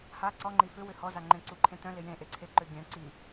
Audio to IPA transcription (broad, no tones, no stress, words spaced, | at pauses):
ha ǀɔŋ͡ǃi fʏ wʏhɔzaŋ͡ǃẽ ǀuǃʰẽt̪œ̃lɪ jẽʔeǀʰe ǃʏɡʲœ̃ ǀi